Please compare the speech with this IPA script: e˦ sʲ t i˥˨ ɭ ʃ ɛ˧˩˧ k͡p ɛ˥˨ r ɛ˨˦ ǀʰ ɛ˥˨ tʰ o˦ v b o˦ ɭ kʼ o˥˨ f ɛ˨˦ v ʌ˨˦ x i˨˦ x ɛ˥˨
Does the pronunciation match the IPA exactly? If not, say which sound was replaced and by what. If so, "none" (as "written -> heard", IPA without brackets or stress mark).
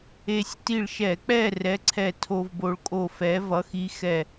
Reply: none